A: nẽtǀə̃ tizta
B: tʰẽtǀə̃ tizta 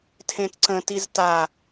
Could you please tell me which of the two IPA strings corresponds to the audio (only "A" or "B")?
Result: B